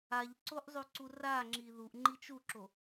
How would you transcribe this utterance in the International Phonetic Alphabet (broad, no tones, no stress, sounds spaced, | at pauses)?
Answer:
a ʎ ǀ o ʔ zˤ ʉ ǀ u r a ŋ͡ǁ i ð u ʔ ŋ͡ǃ i t͡ʃ u ǁ o